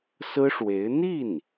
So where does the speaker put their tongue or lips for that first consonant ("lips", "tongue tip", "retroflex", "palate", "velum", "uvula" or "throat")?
tongue tip